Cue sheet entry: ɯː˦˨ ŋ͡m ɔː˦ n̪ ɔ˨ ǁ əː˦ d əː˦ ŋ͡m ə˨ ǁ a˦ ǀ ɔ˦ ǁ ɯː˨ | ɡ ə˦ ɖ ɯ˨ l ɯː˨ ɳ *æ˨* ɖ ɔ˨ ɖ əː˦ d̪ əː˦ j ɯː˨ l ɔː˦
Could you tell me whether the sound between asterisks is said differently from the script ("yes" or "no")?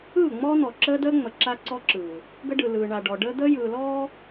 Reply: yes